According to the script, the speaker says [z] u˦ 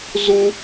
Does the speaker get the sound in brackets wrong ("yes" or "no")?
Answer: no